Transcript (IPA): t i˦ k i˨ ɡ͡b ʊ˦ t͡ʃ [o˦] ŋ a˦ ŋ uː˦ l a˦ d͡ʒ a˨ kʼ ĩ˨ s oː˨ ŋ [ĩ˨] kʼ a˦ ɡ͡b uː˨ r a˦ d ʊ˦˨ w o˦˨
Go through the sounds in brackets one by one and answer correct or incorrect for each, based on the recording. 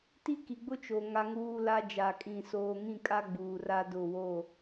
incorrect: o˨, incorrect: ĩ˦˨

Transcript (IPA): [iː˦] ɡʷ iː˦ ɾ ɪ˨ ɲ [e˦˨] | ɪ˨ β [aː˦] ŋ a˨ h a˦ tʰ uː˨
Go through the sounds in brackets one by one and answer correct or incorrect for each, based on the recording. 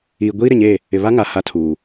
incorrect: iː˨, correct, incorrect: a˦

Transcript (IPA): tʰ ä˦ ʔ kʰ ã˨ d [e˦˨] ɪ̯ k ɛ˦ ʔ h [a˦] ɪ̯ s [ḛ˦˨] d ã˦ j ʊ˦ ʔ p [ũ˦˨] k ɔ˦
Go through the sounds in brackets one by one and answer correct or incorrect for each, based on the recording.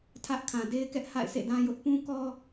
incorrect: e˦, incorrect: a̰˦˨, correct, incorrect: ũ˦

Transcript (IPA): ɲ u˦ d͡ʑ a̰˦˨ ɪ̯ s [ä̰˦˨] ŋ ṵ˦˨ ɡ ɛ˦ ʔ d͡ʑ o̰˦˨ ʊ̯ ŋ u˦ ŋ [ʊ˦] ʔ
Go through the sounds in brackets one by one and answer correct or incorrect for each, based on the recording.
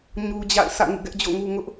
correct, correct

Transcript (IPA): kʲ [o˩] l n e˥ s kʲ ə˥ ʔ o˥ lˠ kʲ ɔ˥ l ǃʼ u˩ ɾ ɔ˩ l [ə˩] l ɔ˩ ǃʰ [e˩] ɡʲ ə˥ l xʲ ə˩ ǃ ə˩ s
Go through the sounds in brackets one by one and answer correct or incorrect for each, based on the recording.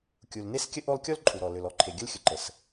incorrect: u˩, incorrect: ø˩, correct

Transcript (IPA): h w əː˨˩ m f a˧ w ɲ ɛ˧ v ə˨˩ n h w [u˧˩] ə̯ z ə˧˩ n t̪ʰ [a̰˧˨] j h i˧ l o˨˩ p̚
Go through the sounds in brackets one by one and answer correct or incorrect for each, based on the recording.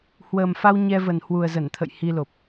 incorrect: u˨˩, incorrect: ə̰˧˨

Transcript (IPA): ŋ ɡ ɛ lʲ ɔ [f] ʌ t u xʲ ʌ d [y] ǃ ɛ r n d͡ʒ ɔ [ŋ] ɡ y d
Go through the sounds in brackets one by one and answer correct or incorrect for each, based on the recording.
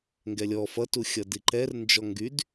correct, incorrect: i, correct

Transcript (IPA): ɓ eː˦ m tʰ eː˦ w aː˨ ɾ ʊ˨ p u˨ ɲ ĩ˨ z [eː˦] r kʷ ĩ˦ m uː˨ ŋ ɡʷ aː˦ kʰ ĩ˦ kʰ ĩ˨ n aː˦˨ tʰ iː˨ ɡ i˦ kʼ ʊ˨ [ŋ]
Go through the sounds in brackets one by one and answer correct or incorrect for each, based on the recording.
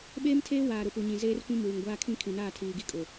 correct, incorrect: none

